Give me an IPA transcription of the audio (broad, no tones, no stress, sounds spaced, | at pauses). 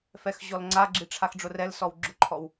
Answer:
f ɛ x ʑ ɔ l ŋ͡ǀ a ɡ͡ǁ i ʈ͡ʂʰ a x ɖ͡ʐ ʊ r ɛ l s ɔ w ɡ͡ǁ ʊ ǃʰ ɔ w